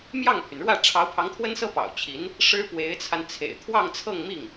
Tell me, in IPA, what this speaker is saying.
m j ɑ˥˩ ŋ pʰ y˩ n ɻ w ä˥˩ ʈ͡ʂʰ ɑ˧˥ ʊ̯ pʰ ɑ˧˥ ŋ t̪ʰ w ə˥ n s ɤ˥ p ɑ̰˨˩ ʊ̯ t͡ɕʰ i˧˥ n | ʂ ɻ̩˥ p w e˧˥ ɪ̯ t͡sʰ a˧ n t͡sʰ ḛ˨˩ ɪ̯ t̪ʰ w ɑ˥˧ ŋ t͡sʰ ɤ˥˧ ŋ m i˥˩ ŋ

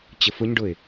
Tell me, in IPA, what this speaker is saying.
t͡ɕ ə f ʊ ɲ ɖ ʊ ɪ̯

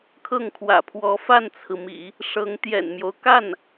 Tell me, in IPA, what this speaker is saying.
kʰ ɤ˥˩ ŋ kʰ w ä̰˨˩ pʰ w ɔ˧˥ f a˥˩ n t͡sʰ ɹ̩˩ m ḭ˨˩˦ | ʂ ɤ˧˥ ŋ t̪ j ɛ̰˨˩ n m j o˦ ʊ̯ k a˥˩ n

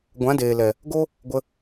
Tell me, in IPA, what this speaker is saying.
ɡʷ ã˨˦ d eː˨ l ɛ˨ | ɡ o˦ | ɡʷ ə˧

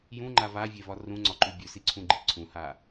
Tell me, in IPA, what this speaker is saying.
j ũ ŋ͡ǃ a v a vʲ e v ɒ r ũ ŋ͡ǀ ɒ ǃ ʉ bʲ ʉ s i ǀʰ ũ ɡ͡ǃ i ǀʰ ũ h a

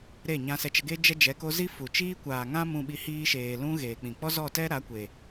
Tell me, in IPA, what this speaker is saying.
ɾ e˦˨ ɲ ã˧ s ɛ˧ t͡ʃ ə˧ ɡ e˦ d͡ʒ ɛ˦ d͡ʒ ɛ˨˦ k o˦ z i˦ f u˨ t͡ʃ iː˦ kʷ aː˨ ŋ ã˦ m ũ˧ ɓ i˧ h iː˧ ʃ eː˨ l ũ˦ ɣ eː˨ k͡p ĩ˨ k͡p ɔ˦ z ɔ˦˨ t ɛ˦ ɾ a˨˦ kʷ eː˨

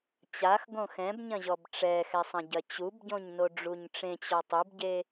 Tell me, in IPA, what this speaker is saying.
t͡ɕ a x ɡ õ x ɛ̃ b ɲ ɐ̃ ʑ ɔ b ʈ͡ʂ ɛ x ɛ sˤ ɐ̃ ɟ ɐ t͡ɕ u b ɟ õ ɲ n o ɖ͡ʐ u ɲ ʈ͡ʂ ẽ t͡ɕ ɔ tˤ u b ɟ e

